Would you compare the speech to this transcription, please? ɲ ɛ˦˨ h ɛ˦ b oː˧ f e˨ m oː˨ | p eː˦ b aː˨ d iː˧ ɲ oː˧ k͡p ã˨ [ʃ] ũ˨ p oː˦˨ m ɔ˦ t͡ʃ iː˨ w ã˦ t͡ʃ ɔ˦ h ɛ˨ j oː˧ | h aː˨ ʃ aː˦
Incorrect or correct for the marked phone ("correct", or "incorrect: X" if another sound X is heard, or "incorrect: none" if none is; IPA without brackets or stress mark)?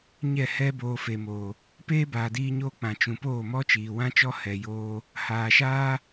incorrect: t͡ʃ